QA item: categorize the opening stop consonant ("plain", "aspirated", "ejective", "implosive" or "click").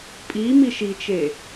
ejective